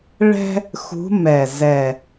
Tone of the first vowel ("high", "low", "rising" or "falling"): high